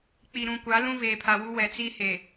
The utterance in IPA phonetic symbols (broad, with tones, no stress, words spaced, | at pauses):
k͡pi˨ɾũ˨kʷa˨˦ lũ˦veː˨pʰa˨wu˦ wɛ˨t͡si˦he˨